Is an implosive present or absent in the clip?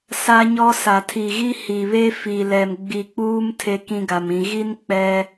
absent